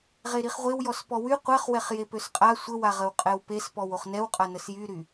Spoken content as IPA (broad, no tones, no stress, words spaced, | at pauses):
ʁeɾiχʁʷew jɔspɔwy qʷɛχwɛχ jepøsqʼa sʷəwaʁəw qʼɛwpespɔw oχnɛwqʼa nəsjyɾy